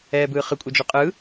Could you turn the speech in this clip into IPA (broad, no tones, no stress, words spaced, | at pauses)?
ɛːbɯːχɯ kʷʼɛd͡ʒuqʼɯː